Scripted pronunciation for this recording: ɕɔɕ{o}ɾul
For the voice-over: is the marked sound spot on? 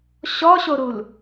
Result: yes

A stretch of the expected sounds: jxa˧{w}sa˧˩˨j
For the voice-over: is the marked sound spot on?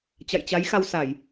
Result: yes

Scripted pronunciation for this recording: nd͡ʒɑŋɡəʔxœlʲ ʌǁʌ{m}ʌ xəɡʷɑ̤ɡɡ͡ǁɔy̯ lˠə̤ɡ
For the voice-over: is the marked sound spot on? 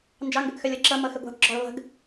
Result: yes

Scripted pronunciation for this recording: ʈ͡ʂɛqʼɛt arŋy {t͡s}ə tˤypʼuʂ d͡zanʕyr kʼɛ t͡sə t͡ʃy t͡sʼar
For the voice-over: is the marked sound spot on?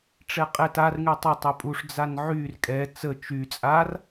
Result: no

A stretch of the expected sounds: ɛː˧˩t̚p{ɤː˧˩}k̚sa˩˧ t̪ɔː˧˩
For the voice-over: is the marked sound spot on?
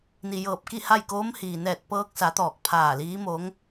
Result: no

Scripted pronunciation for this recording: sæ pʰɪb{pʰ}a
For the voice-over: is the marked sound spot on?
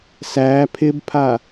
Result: yes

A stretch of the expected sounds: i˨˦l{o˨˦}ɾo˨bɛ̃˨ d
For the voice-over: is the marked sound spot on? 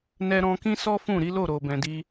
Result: no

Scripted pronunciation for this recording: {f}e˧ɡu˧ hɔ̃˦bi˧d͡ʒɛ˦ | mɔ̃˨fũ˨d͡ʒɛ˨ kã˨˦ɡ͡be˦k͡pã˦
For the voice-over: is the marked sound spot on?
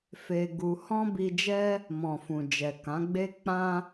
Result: yes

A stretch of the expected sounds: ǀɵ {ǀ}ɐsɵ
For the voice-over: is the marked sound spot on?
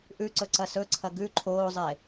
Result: yes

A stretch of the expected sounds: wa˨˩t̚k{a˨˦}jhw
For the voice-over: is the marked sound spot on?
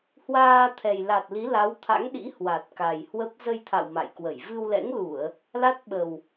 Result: no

